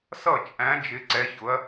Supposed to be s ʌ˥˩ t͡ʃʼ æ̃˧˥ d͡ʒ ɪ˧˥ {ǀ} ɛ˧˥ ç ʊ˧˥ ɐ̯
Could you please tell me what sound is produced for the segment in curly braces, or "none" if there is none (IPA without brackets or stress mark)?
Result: ǀ